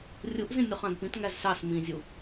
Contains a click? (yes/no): no